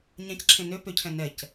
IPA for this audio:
ɲãcǁʰẽ nø pøcʰɛ̃ nɛc

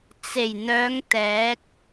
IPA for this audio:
t͡se˨˩jn̪œː˨˧ŋ t̪ɛː˨˥k̚

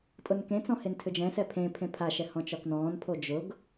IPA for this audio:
tʼʊnkẽt͡sɔ̃ hentʰʏd͡ʒɛ̃sɛ pʰẽ pʰẽpʰaʃɛ hɔ̃t͡ʃɒknɔ̃ːnpʰo d͡ʒʊɡ

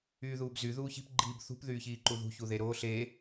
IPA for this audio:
yːðuːbzy ðuːçi̤p ɡ͡ǃiːbθṳp ðyːçiːǃuðṳ çuðeɾoːɬ e

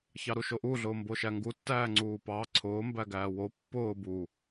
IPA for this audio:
çɑɾuʃoʔu ɮʊːmboʃæŋɡu tːæːŋ͡ǀuːpɑ ǀʰʊː mbæɡæːwo pːʊː bu

